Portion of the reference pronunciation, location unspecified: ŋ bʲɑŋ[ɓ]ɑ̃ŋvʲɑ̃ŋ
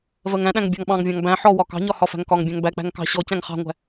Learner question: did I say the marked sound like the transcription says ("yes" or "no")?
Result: yes